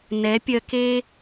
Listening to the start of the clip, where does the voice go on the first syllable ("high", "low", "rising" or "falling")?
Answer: rising